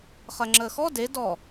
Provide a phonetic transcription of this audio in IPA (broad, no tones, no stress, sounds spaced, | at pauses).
χ ɜ ŋ͡ǁ əː x ɔ d e d ɔ